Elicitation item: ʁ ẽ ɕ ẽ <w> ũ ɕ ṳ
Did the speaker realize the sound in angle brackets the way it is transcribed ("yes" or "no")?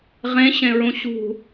no